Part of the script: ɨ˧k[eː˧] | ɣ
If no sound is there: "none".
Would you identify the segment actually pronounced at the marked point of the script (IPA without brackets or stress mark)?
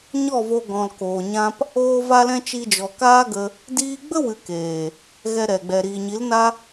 eː˨